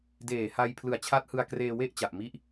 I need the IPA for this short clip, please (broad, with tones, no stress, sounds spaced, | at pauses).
d eː˨˩ h a˧ j pʰ l ɯ˨˩ a̯ t͡ɕʰ a˦˥ t̚ h ɯ˧ a̯ k r eː˧ w e˥˩ ʔ t͡ɕ a˨˩ ʔ m i˦˥ ʔ